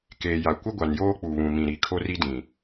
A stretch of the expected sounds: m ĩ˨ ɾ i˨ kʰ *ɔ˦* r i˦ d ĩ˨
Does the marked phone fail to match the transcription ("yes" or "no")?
yes